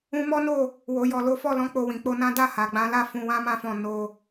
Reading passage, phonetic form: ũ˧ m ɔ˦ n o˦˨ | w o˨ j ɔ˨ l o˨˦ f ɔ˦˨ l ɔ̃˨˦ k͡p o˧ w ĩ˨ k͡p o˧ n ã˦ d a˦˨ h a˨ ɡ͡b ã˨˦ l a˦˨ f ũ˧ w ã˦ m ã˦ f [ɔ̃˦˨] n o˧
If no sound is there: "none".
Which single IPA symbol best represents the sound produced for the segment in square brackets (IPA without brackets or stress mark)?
ɔ̃˦˨